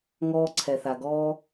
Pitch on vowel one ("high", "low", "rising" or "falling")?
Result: high